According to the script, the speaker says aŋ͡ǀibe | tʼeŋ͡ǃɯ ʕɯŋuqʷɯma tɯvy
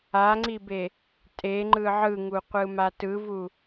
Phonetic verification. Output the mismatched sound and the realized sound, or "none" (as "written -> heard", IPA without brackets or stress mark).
y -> u